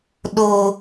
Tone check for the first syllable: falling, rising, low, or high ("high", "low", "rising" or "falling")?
high